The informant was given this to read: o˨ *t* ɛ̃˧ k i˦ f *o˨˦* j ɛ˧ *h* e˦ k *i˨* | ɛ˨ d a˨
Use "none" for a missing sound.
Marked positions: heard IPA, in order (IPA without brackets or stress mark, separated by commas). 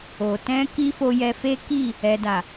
t, o˧, f, i˦˨